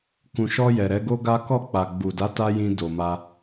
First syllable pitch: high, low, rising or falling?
low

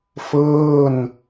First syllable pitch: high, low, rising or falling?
falling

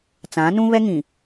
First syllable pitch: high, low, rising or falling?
rising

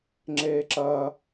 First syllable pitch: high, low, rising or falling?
high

